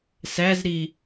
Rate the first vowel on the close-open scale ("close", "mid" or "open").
open